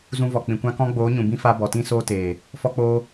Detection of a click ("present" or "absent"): absent